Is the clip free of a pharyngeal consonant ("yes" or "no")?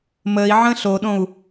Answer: no